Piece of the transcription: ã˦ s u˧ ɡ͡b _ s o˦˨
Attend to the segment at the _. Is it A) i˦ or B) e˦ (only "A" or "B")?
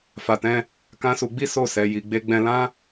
A